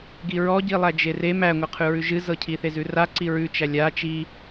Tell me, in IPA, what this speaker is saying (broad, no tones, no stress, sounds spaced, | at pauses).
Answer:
ɡ i ɹ ɔ ɟ i lˠ æ d͡ʒ e r e m æ ŋʷ ɛ qʰ ʉ ɹ ʉ ʒ ɨ z ɤ cʰ i θ e z ʉ r a ǀ i ɹ ʉ t͡ʃ æ lʲ a t͡ʃ i